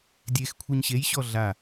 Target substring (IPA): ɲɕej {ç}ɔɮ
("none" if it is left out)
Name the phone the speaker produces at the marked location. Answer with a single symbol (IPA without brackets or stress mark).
ɕ